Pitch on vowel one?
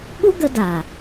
high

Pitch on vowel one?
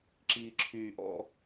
low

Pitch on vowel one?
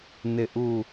falling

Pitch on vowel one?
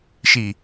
low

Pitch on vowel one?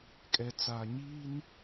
low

